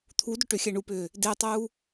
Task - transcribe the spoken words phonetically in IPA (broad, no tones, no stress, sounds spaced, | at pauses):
t̪ʰ u d ʏ ʈ ʏ xʲ ɛ ɳ u p ʏː | d e tˤ uː